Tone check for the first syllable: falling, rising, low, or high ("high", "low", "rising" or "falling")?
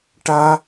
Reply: high